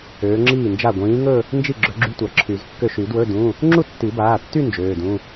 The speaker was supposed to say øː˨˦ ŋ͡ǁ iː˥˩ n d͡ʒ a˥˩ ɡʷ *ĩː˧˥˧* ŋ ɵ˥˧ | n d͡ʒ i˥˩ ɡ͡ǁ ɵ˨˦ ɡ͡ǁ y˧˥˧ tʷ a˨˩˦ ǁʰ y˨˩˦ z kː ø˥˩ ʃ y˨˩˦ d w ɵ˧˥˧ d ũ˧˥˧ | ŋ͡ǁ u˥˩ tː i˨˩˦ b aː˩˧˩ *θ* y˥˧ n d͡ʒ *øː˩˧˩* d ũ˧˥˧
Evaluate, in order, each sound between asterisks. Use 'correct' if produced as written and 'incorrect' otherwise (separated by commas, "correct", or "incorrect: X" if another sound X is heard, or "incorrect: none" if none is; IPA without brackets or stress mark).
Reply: incorrect: ĩː˨˦, incorrect: tː, correct